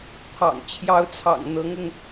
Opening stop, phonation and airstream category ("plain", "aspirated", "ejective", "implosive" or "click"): aspirated